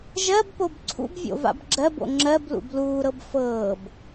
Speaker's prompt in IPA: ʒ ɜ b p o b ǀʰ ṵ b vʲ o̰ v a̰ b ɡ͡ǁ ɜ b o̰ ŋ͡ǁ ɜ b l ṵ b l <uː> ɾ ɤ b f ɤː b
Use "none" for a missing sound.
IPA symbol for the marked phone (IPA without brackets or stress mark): uː